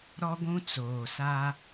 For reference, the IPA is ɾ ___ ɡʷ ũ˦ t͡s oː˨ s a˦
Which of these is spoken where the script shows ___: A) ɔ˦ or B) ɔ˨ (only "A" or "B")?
A